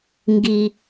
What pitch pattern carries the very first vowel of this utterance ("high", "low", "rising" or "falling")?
high